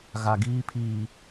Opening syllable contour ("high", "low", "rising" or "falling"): low